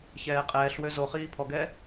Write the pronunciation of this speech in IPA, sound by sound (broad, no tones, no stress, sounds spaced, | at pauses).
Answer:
ç ɛː qʼ ɛː ɬ w ø z o χ iː pʰ ɔ ɡ ɛː